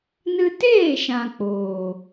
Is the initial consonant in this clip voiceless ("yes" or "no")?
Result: no